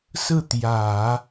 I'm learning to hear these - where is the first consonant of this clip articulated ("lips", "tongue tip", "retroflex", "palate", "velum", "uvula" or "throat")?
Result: tongue tip